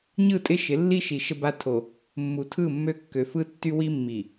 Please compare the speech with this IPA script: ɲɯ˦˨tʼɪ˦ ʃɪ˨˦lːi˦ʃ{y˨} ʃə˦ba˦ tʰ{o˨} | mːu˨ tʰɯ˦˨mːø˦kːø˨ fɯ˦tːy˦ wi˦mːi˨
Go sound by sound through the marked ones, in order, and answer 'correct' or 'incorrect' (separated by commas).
incorrect, correct